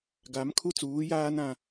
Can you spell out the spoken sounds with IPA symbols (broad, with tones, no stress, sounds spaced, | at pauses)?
ɡ a˨˦ m kʰ u˦ t͡s uː˨˦ j aː˦ n ã˦